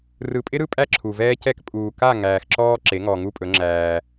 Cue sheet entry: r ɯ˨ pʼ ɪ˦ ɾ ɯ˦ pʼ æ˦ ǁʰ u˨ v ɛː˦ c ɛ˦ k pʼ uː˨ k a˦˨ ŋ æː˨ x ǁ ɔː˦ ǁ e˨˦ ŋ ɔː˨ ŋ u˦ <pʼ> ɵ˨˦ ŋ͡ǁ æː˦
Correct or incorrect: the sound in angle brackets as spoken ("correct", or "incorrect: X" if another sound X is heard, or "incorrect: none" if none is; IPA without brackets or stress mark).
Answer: correct